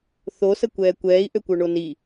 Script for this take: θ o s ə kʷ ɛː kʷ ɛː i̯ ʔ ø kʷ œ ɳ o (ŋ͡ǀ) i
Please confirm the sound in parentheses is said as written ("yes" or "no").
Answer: no